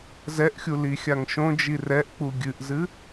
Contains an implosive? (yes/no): no